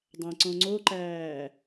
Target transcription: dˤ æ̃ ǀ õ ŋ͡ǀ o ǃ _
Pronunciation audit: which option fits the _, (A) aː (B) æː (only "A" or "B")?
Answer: B